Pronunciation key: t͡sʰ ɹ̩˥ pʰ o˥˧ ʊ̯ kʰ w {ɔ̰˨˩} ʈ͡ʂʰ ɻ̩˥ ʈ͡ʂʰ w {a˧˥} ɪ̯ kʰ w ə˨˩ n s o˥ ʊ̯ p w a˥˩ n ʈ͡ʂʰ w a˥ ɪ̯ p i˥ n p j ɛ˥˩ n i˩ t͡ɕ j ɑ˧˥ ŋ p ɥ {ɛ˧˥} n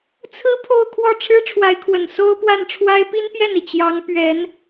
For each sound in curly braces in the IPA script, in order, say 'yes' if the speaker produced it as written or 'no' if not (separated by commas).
no, yes, yes